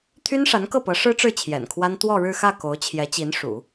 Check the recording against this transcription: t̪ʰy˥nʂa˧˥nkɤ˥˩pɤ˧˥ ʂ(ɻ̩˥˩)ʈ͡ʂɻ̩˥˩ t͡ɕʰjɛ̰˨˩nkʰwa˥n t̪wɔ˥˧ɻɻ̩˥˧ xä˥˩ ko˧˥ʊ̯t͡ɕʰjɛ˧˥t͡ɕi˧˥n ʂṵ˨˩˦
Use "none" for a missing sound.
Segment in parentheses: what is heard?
ɻ̩˥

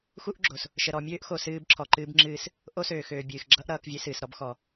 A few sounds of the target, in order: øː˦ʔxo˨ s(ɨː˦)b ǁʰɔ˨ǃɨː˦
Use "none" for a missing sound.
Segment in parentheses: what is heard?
ɨː˦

